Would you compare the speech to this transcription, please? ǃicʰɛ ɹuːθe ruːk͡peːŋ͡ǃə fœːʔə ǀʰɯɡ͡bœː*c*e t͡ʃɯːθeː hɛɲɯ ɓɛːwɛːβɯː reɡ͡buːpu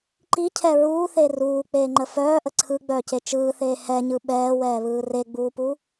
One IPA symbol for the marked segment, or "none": c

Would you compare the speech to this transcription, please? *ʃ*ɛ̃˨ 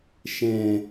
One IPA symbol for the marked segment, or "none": ʃ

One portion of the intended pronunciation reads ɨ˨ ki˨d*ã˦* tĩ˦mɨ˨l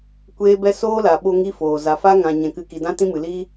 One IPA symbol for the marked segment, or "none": ã˦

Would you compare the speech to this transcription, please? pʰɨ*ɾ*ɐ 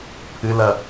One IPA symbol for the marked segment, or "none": l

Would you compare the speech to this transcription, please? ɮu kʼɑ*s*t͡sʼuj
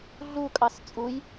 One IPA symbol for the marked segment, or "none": s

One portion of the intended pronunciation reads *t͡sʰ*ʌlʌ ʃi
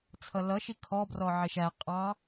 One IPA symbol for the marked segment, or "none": t͡sʰ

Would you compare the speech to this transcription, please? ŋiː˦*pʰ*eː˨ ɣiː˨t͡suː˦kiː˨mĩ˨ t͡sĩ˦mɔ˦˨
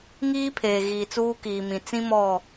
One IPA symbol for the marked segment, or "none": pʰ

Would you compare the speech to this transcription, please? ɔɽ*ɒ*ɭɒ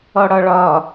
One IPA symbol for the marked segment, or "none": ɒ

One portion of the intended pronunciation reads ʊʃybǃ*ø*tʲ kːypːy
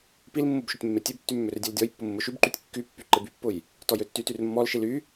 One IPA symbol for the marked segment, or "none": y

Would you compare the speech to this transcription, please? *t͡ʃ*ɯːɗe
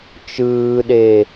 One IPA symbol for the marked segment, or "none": t͡ʃ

